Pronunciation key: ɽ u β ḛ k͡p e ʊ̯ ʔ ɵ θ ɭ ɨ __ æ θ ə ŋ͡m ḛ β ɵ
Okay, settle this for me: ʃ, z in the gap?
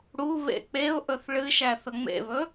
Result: ʃ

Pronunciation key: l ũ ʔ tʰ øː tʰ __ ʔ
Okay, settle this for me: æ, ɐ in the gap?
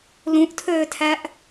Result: æ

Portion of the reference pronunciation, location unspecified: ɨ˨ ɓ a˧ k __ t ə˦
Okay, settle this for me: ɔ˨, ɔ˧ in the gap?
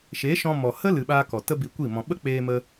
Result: ɔ˨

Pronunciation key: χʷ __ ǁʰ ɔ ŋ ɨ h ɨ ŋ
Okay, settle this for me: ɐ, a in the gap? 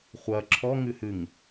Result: ɐ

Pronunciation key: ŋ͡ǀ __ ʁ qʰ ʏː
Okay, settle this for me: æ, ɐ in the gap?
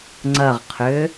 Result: ɐ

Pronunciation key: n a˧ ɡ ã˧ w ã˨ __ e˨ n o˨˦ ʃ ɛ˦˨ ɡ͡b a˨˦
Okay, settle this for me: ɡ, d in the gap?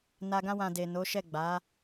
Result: d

